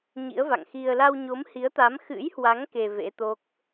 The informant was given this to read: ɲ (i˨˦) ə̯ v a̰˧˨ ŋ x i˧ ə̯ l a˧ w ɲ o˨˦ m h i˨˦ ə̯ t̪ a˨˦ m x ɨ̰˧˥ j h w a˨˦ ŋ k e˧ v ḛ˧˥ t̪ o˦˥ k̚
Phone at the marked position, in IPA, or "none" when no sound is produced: ḭ˧˥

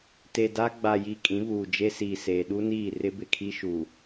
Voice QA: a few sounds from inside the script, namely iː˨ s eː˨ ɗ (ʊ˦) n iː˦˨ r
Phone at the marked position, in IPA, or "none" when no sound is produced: u˦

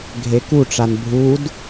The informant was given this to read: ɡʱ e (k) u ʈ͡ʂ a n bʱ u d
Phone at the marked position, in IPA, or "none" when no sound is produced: k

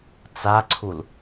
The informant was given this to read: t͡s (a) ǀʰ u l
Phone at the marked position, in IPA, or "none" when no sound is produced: a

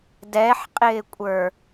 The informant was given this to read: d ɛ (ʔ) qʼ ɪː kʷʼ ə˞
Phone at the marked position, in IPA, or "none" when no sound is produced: ħ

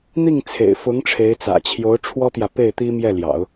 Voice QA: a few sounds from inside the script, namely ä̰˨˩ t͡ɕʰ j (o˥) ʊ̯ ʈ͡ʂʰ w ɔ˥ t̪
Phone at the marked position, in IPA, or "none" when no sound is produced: o˧˥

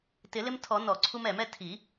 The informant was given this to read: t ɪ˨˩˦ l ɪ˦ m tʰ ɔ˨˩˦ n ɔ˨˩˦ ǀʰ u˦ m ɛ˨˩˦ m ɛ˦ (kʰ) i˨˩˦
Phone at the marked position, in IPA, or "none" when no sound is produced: tʰ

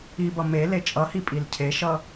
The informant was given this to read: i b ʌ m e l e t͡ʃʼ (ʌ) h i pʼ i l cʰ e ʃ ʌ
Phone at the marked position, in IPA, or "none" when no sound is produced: ʌ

